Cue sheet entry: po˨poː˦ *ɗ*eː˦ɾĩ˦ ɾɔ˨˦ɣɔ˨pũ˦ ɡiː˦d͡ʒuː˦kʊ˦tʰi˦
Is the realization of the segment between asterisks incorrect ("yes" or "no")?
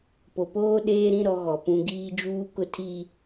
no